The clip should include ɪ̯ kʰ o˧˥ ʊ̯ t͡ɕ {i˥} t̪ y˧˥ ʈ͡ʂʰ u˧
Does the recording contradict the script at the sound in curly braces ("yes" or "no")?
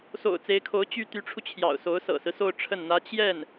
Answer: yes